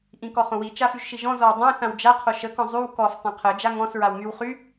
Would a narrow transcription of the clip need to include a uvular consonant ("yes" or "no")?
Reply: yes